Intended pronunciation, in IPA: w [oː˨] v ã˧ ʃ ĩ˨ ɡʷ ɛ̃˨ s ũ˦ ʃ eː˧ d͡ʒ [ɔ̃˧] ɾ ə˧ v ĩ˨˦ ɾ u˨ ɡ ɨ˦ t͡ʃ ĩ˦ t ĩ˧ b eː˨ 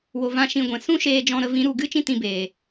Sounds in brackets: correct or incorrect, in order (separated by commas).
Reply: incorrect, correct